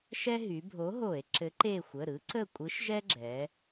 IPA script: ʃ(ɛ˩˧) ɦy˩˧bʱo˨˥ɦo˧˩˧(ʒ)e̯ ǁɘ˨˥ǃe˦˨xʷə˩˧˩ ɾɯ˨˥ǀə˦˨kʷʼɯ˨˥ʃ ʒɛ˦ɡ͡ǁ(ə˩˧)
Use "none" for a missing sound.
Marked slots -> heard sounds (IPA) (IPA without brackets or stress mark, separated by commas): ɛ˦, none, ɛ˩˧